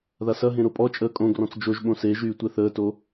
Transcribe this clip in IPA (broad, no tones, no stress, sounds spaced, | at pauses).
ð a s ɐ ɦ ẽ ɾ o pʼ ɔ t͡ʃʼ əː kʼ õ ɡ r ɔ̃ t͡s d͡ʒ o ʒ ɓ õ s e ʒ yː tʷ ɛ θ əː t o